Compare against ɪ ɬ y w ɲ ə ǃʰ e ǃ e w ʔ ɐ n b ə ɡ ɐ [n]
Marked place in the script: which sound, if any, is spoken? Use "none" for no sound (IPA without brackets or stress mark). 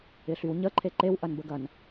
n